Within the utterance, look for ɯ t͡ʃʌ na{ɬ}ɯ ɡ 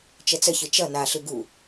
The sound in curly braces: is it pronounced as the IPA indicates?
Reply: yes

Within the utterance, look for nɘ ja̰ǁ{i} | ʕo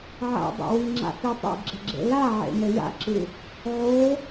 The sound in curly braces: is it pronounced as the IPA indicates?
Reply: no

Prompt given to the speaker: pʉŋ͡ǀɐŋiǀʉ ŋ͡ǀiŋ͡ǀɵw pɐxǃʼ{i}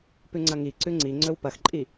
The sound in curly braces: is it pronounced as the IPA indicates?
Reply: yes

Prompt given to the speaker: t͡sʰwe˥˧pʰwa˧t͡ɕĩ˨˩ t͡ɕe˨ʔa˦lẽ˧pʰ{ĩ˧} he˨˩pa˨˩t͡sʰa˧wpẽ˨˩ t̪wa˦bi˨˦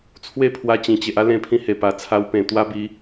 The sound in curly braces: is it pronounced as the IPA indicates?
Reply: yes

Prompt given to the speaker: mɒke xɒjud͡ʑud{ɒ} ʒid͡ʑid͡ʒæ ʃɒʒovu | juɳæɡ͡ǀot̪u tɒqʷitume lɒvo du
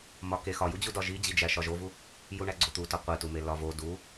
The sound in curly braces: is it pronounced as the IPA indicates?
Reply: yes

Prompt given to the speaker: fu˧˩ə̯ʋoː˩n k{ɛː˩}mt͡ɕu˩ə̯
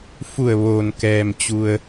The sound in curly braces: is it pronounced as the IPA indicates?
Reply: yes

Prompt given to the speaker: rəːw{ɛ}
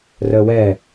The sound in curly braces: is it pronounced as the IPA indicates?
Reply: yes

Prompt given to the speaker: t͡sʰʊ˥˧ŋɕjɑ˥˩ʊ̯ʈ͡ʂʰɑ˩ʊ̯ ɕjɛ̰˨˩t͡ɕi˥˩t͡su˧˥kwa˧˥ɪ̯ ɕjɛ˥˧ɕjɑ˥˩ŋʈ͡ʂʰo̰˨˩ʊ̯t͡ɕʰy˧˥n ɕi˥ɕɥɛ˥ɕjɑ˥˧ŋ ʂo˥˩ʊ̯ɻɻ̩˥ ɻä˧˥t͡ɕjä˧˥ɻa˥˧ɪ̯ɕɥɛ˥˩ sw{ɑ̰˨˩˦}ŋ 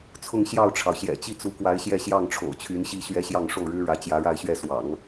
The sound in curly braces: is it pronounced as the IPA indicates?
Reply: yes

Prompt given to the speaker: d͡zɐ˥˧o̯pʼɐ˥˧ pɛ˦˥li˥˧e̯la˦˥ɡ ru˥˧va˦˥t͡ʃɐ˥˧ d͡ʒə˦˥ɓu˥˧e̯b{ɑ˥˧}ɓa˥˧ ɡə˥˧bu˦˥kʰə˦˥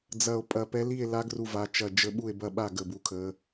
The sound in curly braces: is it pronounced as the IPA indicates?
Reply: no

